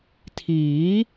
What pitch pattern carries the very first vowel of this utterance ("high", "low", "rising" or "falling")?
rising